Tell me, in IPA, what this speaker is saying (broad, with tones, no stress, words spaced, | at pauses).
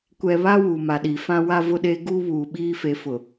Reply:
kʷɛ˨βa˦ wuː˨ma˨ɗi˨ fã˦wa˦ vʊ˦ɗe˦ ɡuː˦βuː˨ ɓiː˦fe˨˦fʊ˨